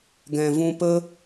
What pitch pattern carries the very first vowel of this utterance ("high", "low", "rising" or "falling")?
low